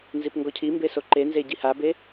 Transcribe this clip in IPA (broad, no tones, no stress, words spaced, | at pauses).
nzipŋɡɔcʰimbe soǃenze ɟihabe